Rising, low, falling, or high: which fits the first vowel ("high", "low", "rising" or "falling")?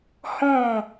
falling